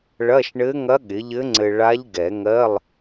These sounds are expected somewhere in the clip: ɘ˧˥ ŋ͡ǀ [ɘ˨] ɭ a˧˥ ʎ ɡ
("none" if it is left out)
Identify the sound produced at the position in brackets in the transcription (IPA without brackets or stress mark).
ɘ˨